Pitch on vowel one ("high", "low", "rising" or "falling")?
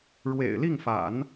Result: low